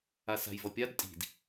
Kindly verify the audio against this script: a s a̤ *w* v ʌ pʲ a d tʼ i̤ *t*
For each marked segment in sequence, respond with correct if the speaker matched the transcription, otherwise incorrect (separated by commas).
incorrect, incorrect